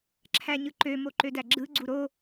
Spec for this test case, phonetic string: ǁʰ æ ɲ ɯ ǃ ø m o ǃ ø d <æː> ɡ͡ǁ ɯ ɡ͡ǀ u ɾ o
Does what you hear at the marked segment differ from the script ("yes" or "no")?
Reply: yes